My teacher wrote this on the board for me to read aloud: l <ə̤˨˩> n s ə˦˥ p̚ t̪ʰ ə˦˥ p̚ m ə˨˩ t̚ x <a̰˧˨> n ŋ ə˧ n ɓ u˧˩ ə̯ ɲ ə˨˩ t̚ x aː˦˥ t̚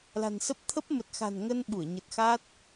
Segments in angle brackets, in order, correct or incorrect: incorrect: a̤˨˩, incorrect: a̤˨˩

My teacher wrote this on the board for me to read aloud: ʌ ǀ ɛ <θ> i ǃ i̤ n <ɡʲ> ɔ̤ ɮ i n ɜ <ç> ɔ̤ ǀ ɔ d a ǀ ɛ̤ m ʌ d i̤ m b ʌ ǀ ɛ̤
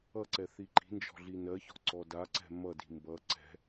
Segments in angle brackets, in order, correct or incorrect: correct, incorrect: d͡ʒ, correct

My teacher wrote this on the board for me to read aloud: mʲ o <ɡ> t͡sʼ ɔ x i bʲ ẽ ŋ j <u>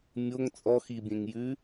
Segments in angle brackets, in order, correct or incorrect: incorrect: ŋ, incorrect: ʉ

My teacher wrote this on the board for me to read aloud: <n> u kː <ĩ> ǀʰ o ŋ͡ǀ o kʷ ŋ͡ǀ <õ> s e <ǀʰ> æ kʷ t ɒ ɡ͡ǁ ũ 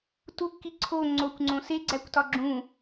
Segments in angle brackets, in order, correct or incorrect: incorrect: t, incorrect: i, correct, incorrect: ɡ͡ǀ

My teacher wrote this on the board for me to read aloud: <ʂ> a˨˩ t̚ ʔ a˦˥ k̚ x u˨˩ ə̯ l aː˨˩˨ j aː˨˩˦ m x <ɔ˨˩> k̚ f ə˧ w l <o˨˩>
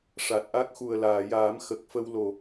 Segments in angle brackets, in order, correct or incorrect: correct, incorrect: ə˨˩, correct

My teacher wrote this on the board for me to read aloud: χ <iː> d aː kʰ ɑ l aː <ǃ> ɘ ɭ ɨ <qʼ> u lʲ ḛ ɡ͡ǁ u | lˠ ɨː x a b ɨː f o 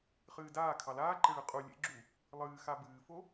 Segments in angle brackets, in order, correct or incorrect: incorrect: ɨː, correct, correct

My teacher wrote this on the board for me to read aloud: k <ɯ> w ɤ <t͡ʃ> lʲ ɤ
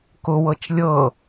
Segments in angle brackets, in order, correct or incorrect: incorrect: ʊ, correct

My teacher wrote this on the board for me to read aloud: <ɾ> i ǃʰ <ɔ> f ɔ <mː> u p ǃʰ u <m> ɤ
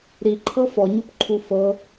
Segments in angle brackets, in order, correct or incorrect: correct, incorrect: ɤ, incorrect: ɲ, incorrect: f

